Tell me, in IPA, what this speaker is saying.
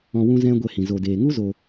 ɔ̃˧ w ũ˦ z ɛ̃˦ ɡʷ ɛ˧ h ĩ˨ z o˨ d eː˨ ŋ u˦ z o˧

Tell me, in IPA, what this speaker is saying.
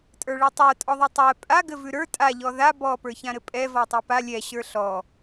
tʼ ə˞ ɭ ɛ tˤ ə˞ tʼ ɔ ðˤ ə˞ tˤ ɛ pʼ a ɡ ɘ v ʉ ɾ ə˞ tʼ a ʎ ɔ ð a b ɔ p ə˞ ç ã ɾ ɘ pʼ ɛ v ɔ tˤ ɛ p a lʲ ɛ ɕ ə˞ ɬ ɔ

